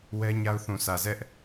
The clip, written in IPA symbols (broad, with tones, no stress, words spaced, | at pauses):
wɛ˦ɲa˦ʊ̯ θũ˨sä˨zɛ˦ʔ